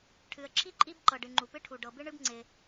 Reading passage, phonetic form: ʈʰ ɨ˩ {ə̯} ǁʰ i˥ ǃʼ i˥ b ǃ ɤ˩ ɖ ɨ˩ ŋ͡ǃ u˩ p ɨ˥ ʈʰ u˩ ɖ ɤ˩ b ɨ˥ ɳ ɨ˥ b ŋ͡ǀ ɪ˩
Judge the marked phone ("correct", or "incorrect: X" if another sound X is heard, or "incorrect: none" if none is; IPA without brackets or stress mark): correct